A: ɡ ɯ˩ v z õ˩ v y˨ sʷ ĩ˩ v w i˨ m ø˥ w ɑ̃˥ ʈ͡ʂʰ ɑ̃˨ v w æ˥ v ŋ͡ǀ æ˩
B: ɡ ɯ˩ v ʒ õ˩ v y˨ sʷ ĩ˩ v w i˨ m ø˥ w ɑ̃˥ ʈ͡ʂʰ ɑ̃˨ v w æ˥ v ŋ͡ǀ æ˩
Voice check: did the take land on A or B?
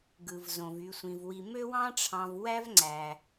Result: A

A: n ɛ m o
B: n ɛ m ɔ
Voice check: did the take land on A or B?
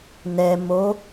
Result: A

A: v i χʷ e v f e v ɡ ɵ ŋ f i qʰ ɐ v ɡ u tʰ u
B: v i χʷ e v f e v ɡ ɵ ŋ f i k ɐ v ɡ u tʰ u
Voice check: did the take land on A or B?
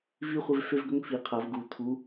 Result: A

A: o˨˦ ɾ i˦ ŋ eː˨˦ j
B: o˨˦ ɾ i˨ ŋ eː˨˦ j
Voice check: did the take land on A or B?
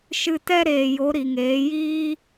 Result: B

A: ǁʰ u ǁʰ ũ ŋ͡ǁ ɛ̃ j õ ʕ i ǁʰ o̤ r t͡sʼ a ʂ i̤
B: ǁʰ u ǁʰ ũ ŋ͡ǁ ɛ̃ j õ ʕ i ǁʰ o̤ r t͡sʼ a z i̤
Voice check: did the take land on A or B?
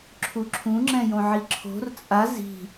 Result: B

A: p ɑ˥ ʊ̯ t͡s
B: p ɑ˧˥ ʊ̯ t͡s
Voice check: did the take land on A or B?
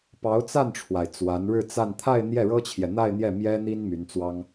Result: B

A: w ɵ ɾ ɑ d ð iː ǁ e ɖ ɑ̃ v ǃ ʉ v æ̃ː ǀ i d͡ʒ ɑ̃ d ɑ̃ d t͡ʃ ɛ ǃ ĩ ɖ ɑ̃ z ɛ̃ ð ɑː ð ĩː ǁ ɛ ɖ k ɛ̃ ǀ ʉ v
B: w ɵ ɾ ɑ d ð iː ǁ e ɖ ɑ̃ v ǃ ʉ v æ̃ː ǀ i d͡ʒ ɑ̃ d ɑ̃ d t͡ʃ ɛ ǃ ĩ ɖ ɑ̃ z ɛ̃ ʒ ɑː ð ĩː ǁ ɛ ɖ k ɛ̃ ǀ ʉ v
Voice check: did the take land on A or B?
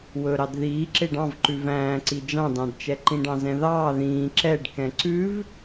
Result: A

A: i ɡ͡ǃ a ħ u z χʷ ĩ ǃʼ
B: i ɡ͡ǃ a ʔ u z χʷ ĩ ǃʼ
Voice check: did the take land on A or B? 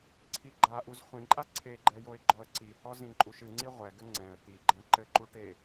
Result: B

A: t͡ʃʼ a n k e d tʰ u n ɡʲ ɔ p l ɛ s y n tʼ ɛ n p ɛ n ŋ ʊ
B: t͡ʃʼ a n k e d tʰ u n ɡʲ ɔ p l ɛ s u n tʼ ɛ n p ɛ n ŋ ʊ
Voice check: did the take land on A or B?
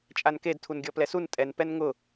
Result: B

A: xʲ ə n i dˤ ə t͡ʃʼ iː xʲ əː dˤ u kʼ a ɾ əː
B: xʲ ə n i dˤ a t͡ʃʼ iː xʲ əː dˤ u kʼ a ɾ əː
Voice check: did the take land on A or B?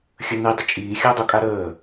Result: A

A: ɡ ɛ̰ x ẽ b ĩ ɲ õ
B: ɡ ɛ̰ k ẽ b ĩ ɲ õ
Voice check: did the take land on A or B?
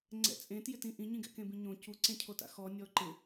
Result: B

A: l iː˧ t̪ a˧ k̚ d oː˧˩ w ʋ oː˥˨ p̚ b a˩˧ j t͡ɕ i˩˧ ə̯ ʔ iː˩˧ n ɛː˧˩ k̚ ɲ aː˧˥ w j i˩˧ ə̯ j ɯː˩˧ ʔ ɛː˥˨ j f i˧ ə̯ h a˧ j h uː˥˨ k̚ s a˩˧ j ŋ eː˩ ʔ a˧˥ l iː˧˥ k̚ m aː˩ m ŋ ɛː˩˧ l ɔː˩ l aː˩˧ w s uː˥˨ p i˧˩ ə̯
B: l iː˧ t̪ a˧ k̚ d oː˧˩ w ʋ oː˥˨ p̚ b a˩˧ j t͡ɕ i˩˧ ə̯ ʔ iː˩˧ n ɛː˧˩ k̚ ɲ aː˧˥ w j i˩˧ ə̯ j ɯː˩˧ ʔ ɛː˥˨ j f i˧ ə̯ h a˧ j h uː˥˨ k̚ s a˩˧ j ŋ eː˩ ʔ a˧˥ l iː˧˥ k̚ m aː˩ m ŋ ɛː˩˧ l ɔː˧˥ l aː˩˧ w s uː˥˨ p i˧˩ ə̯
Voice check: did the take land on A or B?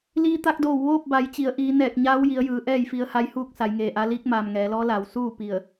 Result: B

